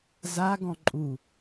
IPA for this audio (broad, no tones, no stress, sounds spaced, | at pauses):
z a ɡ ɔ̃ ǃʼ u